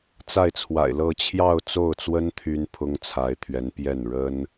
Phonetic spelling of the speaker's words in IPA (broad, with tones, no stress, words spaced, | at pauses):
t͡sa˥˩ɪ̯t͡sʰwa̰˨˩ɪ̯lɤ˥˧ t͡ɕʰjɑ˥˧ʊ̯t͡so˥˩ʊ̯t͡swə˥n t̪ʰy˥npʰʊ˥ŋt͡sʰa˧˥ɪ̯t̪ʰɥɛ˧˥n pjɛ˥˩n ɻə˥n